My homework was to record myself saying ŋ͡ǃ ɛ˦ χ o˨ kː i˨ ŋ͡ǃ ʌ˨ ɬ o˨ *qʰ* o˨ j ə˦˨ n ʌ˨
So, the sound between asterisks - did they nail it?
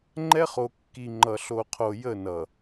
yes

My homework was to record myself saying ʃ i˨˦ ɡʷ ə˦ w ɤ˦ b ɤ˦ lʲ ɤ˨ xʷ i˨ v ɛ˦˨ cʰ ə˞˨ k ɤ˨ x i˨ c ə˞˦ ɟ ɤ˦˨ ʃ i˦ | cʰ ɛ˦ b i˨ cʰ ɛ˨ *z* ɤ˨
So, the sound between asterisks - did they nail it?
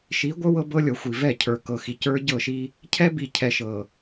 no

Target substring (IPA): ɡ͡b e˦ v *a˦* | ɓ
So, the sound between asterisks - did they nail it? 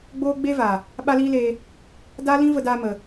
no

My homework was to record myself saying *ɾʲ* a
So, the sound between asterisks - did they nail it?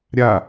yes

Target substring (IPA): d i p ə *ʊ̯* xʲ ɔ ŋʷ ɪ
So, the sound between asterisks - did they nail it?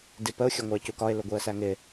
yes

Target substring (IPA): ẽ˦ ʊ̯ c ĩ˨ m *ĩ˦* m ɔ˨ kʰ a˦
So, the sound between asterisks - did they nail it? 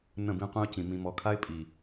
no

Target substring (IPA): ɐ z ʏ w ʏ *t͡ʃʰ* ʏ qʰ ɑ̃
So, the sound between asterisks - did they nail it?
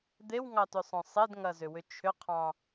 yes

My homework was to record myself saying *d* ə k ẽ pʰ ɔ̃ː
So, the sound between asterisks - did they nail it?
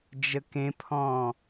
no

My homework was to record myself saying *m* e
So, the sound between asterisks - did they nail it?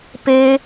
no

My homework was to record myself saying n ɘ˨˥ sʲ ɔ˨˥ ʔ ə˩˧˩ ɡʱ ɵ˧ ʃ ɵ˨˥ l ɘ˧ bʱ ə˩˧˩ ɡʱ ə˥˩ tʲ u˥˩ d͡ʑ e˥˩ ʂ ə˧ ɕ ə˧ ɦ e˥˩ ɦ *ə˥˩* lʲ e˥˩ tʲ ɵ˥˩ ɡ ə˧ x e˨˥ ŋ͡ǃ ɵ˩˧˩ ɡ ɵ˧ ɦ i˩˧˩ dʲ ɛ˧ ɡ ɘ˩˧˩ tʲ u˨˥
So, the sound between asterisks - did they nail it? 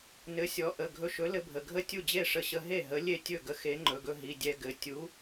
no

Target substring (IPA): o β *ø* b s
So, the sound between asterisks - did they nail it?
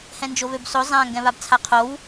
yes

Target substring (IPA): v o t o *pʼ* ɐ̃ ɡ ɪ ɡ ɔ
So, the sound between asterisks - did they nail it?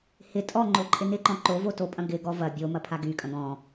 yes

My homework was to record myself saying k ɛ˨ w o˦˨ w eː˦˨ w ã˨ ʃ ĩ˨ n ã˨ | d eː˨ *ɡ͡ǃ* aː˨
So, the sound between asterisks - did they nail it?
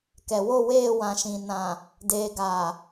no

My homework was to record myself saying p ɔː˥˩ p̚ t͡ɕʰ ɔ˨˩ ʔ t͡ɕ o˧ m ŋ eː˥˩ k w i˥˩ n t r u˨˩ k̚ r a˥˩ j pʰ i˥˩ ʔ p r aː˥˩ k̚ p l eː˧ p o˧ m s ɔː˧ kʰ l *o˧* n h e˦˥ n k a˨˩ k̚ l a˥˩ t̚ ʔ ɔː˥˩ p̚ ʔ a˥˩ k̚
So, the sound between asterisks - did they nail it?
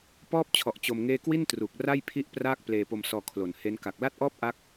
no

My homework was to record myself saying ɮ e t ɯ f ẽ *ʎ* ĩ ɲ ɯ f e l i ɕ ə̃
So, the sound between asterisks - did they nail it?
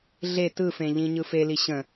yes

